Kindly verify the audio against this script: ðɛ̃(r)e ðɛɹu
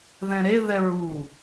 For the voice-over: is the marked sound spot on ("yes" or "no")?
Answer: no